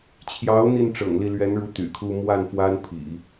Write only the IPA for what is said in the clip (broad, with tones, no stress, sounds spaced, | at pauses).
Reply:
t͡ɕʰ j ɑ˧˥ ʊ̯ n̪ i˥˩ n ʈ͡ʂ ɤ̰˨˩ ŋ l i˥˩ l ɥ ɛ˧˥ n ɻ u˧˥ t̪ y̰˨˩ kʰ u˥ m w a˥˩ n f w a˥ n pʰ ḭ˨˩˦